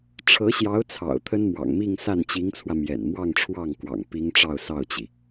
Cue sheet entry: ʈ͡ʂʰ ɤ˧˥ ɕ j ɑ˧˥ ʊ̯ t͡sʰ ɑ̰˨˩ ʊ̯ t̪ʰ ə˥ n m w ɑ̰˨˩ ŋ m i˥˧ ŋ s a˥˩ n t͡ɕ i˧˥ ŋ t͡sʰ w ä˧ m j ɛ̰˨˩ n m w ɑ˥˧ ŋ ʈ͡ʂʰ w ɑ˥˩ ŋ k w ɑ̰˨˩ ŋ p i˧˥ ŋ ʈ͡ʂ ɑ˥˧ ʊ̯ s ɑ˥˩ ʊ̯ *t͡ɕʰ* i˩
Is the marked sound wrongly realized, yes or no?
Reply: yes